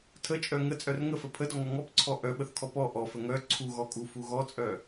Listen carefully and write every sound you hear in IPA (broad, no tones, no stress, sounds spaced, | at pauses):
tʰ ə t͡ʃʼ œ ŋ ə t͡sʼ œ r ŋ ə f ə pʰ ə d ɔ ŋ ɔ ŋ ɔ p ǀʰ ɔ ʔ œ ɓ ə θ kʰ ɔ p ɔ ʔ ɔ f ə ŋ œ ǀʰ u ɣ ɔ kʼ u f u ɣ ɔ t͡sʼ œ